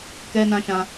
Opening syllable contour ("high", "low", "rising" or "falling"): high